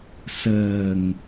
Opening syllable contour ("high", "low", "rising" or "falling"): low